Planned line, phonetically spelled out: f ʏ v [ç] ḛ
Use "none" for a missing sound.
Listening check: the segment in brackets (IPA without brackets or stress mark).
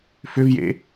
j